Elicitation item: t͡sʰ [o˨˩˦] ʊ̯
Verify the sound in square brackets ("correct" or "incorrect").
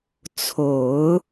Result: correct